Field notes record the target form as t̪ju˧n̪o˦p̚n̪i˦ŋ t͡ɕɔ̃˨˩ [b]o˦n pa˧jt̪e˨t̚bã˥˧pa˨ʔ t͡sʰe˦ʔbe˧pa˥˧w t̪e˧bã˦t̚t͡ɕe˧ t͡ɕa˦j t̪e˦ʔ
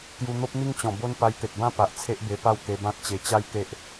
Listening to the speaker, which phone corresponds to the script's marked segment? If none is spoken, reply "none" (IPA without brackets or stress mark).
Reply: b